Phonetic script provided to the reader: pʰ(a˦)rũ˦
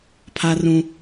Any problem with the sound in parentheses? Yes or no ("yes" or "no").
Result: no